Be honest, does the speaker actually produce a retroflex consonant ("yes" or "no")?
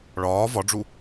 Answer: yes